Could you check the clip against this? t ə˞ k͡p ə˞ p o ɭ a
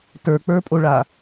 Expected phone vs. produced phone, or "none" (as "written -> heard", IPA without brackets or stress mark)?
p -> pʼ